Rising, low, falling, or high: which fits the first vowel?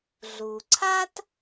low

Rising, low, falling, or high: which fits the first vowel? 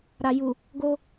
low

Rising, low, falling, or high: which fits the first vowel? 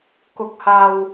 low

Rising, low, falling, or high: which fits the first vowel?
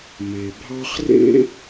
low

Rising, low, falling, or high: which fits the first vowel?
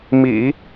low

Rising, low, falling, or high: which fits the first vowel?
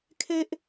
high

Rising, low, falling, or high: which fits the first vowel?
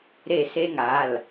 falling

